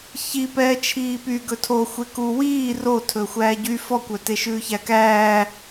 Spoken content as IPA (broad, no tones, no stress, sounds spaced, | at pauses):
ç i p ɛː t͡ʃʰ iː p y ɡ ɵ tʰ o xʷ e k u w iː r o tʰ ɵ xʷ æː ɟ y f ɔ kʷ œ t e ʃ ʉː ç æ k æː